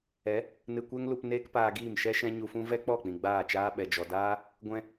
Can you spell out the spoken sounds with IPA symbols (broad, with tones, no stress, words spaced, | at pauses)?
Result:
ɛ˨˦ | nɨ˧kʷɛ˦ŋlu˧p neː˦kpaː˧ɡiː˦˨mʃɛ˦ ʃɛ̃˦ɲu˧fũ˦ vɛ˦k͡pɔ˦˨ k͡pĩ˨ɡ͡baː˦˨t͡ʃaː˦ɓɛ˨ d͡ʒɔ˨daː˦ | ɡʷɛ̃˧